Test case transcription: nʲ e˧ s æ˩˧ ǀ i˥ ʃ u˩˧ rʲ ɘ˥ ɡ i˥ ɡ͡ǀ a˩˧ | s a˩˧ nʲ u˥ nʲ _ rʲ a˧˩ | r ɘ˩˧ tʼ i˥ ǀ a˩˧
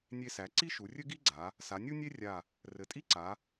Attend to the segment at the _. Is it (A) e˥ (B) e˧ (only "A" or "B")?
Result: A